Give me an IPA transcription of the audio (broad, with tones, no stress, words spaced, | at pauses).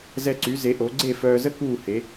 zɛ˧ǀy˩˥ze˩˥ʔo˩˥ ɡ͡ǀe˥˩ fœː˧zə˥ kuː˥˩he˩˥